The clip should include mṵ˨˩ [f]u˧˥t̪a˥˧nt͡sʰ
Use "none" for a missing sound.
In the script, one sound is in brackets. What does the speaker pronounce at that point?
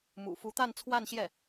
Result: f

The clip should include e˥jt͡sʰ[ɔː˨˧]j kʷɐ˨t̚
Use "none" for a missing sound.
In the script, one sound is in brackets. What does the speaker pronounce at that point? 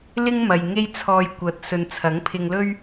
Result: ɔː˧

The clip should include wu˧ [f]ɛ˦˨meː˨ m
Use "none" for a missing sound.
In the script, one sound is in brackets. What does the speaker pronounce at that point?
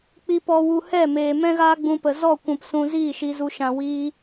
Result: h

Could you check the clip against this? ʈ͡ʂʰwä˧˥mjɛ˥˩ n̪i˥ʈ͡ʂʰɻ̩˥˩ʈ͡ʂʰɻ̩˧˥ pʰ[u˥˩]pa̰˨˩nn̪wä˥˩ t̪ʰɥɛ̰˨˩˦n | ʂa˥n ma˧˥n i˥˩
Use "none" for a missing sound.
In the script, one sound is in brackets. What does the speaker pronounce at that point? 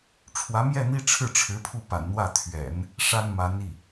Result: u˥˩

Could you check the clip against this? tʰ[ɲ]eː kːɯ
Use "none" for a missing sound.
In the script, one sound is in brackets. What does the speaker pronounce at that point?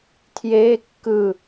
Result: j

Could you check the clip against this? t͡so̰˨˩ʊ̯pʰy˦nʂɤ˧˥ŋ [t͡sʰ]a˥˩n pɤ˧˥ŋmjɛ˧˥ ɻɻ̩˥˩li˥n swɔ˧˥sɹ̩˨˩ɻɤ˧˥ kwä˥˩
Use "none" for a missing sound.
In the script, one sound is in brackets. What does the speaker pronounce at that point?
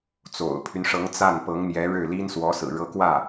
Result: t͡s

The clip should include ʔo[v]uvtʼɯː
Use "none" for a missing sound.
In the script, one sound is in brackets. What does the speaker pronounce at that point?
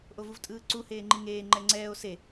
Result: v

